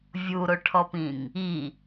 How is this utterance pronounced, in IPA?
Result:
vʲ u ɾ o ʈʰ ɔ p ĩ ŋ | i

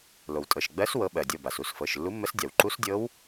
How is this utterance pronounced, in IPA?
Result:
l o˩ w tʼ ɤ˩˧˩ ʃ ɡ͡b ɜ˧˥ s w ɤ˧˥ ɓ ɜ˩ dʲ ɤ˩˧˩ b a˩ s u˩˧˩ s f ɤ˩˧˩ ʃ lː u˧˥ mː ə˧˥ s dʲ a˩ w ǃ u˧˥ s dʲ ɤ˧˥ w

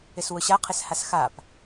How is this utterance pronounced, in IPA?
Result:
ɪ s w ʊ ɕ a qʰ ɪ s h a s x a p

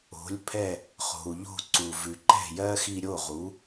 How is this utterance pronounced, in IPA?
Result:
o̤˩˥ lʲ pʰ ɛ˥˩ | χ o̤˩ u̯ ʎ o̤˥˩ ǀ u˩ v ʉ˩ ǃ ɛ̤˥˩ j ɜː˥ x i˧ ɾʲ o˥˩ ʁ u˩˥

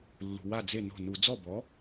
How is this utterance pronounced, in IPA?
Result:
lː ṳ˩ w a˥˩ d͡z e˥˩ n o̤˥˩ n u˧˩˧ d͡z ɔ˥˩ b ɔ˩˥

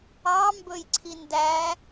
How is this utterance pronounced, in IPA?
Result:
ɑ m b ɵ j ǀʰ i n d æ

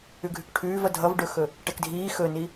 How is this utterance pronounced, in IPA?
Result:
ʉ ɡʱ ʉ k ʈʰ ʉː v ʌ dʱ ʌ v ɖ ɵ x ɵ | ʈ ɛ k dʱ iː x ɵ n i

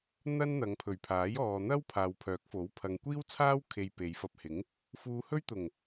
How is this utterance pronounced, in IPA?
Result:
n̪ ɐ˥ n n̪ ɐ˨˧ ŋ pʰ ɵ˨˩ ɥ pʰ aː˨˥ j ɔː˨ n̪ ɐ˥ w pʰ aː˨ w pʰ œː˨˥ k̚ f o˨˥ w pʰ ɐ˨ ŋ kʷ iː˥ w t͡sʰ aː˥ w kʰ e˨ j p e˨˧ j f ɐ˧ p̚ h ɪ˨˥ ŋ | f uː˧ h ɵ˥ ɥ t̪ ʊ˨˩ ŋ

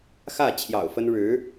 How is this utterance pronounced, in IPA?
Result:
x ä˥˩ t͡ɕʰ j ɑ̰˨˩ ʊ̯ f ə˥ n ɻ ɻ̩˧˥

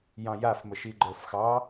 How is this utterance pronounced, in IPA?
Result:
j ɑ̃ j a f m ə ʃ i ɡ͡ǃ ə˞ f x ɑ

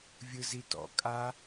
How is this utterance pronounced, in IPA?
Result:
vʲ ɯ z i t ɔ̰ kʼ a

